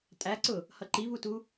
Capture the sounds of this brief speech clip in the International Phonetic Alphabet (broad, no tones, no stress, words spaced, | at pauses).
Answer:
tʼæǀʊ | hʌǃivutu